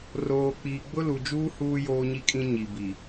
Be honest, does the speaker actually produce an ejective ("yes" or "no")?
yes